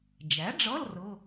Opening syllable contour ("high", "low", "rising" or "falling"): rising